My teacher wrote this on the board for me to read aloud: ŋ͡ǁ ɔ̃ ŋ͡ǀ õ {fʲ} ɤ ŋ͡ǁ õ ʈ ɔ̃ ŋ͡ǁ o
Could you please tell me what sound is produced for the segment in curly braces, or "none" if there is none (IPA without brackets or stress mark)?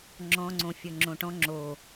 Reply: fʲ